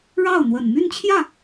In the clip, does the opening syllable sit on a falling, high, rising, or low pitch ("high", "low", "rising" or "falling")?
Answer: falling